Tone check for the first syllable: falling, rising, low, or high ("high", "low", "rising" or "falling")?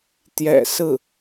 low